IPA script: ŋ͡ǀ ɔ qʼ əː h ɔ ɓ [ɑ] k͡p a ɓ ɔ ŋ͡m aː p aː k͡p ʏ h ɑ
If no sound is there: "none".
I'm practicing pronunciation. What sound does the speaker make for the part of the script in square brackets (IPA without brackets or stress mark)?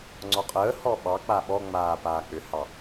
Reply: ɑ